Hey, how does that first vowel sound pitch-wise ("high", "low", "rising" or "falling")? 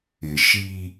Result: low